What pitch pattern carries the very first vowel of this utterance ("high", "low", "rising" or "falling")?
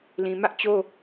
low